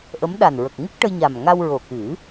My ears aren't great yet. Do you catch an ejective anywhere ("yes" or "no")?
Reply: no